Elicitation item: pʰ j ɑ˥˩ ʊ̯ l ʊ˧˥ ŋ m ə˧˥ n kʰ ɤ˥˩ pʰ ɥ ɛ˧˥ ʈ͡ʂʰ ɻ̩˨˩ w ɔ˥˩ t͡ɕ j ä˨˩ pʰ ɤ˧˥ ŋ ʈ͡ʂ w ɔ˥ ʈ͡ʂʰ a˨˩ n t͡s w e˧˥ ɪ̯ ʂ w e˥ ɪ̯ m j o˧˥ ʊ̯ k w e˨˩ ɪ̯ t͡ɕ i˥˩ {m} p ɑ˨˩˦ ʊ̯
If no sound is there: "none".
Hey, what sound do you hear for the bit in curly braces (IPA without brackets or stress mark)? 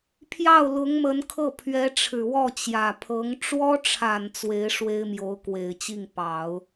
ŋ